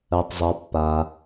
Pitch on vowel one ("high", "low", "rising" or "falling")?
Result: low